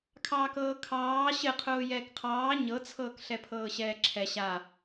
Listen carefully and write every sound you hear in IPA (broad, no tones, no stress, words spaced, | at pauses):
kʰɑːkɤːkʰɑː ɕɘqʰʊː jɛːkqʰɑː ɲɤt͡sʰɤːk ɬɛpʰɤːɕɛːǁʰɛ ɕa